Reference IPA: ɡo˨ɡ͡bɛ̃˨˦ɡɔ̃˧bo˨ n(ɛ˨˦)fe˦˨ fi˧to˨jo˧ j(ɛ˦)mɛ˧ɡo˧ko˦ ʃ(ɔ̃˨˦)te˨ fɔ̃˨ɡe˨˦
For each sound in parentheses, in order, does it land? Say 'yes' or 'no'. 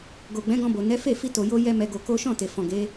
yes, yes, no

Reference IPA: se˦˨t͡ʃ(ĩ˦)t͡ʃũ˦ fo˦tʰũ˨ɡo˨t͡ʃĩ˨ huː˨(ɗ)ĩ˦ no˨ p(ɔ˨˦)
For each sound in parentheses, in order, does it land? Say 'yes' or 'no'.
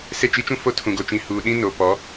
no, yes, yes

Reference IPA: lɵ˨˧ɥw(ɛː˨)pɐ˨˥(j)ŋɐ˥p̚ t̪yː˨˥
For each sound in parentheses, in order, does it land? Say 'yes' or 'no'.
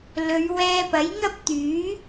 no, yes

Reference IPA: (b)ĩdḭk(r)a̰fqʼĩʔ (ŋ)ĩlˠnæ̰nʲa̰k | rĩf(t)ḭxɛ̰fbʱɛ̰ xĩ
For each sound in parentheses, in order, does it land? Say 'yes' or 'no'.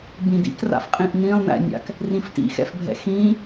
yes, yes, no, yes

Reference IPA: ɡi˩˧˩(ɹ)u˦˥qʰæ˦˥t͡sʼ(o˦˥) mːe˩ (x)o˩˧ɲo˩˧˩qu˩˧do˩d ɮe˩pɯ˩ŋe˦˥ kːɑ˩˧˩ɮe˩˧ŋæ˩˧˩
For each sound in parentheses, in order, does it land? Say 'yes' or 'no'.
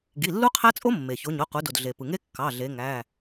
no, yes, no

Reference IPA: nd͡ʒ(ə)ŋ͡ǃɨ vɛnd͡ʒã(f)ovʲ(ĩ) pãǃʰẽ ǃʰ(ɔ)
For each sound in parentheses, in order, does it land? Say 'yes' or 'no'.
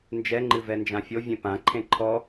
no, no, no, yes

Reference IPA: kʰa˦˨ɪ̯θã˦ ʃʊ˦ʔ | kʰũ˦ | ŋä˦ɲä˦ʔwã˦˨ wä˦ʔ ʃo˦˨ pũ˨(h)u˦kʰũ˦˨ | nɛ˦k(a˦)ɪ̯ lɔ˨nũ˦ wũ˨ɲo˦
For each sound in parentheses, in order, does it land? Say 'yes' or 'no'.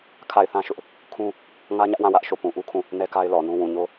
no, yes

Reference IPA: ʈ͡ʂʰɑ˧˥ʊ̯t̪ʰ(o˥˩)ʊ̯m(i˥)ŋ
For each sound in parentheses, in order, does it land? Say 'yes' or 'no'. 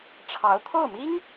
yes, yes

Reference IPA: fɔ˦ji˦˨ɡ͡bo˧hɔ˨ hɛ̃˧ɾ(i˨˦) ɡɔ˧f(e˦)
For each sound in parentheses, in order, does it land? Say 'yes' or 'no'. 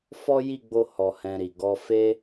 no, yes

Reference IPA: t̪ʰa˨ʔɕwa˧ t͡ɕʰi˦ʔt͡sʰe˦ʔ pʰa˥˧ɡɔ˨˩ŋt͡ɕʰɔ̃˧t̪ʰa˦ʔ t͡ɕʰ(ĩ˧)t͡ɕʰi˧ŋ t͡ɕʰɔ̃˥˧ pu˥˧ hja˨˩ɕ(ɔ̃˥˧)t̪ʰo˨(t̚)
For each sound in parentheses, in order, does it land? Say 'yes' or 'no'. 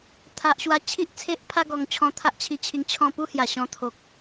no, yes, no

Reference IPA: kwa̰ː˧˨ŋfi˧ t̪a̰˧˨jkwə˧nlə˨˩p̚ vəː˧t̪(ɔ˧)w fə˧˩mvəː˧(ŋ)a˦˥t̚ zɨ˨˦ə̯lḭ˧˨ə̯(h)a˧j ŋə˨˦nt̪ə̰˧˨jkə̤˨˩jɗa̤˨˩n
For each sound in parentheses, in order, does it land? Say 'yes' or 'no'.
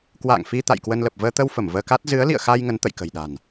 no, no, no

